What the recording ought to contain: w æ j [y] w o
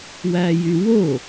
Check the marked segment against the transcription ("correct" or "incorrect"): correct